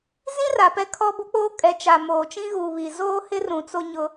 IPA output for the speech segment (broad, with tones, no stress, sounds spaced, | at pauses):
z ĩ˦ r a˨ p ɛ˦ kʰ ɔ˦ b o˦ k͡p oː˦ kʼ ɛ˨ t͡ʃ a˨ m oː˨ t͡ʃ ĩ˦ ɣ uː˨ β i˨ z oː˦ h ɪ˦ r ũ˨ t͡s o˦ ɲ ʊ˦